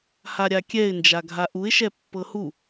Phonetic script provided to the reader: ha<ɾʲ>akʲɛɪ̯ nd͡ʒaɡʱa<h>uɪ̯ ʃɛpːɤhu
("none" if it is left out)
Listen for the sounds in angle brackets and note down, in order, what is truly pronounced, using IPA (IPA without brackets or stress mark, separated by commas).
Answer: ɾʲ, ʔ